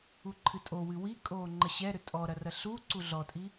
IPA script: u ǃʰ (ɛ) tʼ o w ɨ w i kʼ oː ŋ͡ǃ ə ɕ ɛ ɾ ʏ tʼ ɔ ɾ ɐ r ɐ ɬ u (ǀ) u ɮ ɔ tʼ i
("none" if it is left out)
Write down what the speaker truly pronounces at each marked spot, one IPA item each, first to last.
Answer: ɨ, ǀ

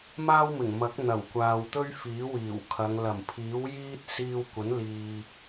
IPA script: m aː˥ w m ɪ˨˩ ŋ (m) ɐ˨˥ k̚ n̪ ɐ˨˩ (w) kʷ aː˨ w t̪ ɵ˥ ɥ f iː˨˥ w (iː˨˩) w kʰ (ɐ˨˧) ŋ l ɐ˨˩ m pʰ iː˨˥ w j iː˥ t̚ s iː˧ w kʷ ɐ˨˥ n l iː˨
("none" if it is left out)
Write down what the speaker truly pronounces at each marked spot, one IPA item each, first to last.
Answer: m, w, iː˨˩, ɐ˨˧

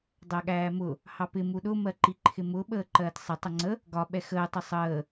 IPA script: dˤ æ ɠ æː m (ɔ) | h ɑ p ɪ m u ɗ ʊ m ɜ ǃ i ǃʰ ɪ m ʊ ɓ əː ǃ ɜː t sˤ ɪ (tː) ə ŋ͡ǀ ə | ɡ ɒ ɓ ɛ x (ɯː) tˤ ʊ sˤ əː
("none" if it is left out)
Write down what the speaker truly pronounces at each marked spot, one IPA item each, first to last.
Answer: ʊ, tˤ, əː

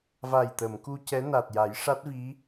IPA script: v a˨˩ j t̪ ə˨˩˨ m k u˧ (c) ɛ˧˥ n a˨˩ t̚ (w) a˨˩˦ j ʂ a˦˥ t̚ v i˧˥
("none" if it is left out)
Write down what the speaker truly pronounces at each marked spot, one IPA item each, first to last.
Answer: c, j

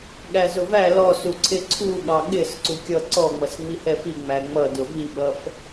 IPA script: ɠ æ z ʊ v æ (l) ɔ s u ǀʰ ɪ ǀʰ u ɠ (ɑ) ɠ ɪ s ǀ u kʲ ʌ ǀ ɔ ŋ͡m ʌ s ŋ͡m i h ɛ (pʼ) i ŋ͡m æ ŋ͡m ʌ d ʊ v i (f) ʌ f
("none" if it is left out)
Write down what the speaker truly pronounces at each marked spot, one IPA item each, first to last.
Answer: l, ɑ, f, ɓ

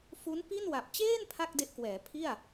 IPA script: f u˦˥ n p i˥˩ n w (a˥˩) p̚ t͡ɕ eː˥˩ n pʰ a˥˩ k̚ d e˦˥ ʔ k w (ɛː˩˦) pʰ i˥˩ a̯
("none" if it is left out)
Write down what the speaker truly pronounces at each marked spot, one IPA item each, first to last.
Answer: a˨˩, ɛː˩˦

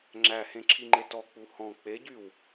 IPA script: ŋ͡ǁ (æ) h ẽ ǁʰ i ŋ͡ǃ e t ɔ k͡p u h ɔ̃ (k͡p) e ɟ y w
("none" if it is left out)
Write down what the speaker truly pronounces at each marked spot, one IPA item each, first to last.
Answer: æ, k͡p

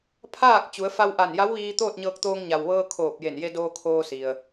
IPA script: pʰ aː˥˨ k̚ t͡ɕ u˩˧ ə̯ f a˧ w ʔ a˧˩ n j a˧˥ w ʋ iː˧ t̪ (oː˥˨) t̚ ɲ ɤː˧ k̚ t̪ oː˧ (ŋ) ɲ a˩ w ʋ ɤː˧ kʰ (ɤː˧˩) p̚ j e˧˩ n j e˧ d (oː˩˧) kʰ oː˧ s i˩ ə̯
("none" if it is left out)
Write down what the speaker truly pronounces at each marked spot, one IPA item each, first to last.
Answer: oː˥˨, ŋ, oː˧˩, oː˧

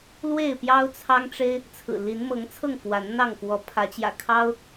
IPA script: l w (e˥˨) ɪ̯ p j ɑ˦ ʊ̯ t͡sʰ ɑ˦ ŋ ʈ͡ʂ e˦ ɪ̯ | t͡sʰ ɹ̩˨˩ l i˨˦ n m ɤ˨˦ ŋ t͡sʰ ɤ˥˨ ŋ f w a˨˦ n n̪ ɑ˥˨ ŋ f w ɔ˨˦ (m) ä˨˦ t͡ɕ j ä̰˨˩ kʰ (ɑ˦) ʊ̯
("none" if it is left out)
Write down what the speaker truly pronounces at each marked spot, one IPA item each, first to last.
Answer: e˥˨, pʰ, ɑ˦

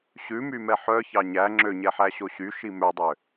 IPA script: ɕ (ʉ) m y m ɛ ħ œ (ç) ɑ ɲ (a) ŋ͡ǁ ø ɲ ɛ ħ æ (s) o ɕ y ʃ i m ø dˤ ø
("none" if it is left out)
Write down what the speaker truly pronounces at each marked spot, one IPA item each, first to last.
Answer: ʉ, ç, æ, ɕ

